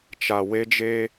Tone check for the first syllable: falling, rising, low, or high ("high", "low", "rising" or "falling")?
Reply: low